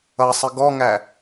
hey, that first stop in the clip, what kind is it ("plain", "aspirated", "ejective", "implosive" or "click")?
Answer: plain